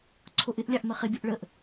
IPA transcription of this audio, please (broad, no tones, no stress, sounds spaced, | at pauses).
ǀʰ o ʔ ɪ ʔ lʲ ɑ ʔ m ə χ ɪ bʲ ʊ ʔ ɭ ə ʔ